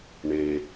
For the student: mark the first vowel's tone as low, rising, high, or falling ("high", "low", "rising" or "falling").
low